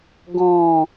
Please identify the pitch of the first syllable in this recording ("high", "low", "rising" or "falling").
low